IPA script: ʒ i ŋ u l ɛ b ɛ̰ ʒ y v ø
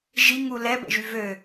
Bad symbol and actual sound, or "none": none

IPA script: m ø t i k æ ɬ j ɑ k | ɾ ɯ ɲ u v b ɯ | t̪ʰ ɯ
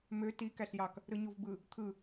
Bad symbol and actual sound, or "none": none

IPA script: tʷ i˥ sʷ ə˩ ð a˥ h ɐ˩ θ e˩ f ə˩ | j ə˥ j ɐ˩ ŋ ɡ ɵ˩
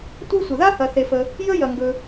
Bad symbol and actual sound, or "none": none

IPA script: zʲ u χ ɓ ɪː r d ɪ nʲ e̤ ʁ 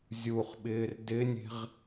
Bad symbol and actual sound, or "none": none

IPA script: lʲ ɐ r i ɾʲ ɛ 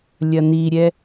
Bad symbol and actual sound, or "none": r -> n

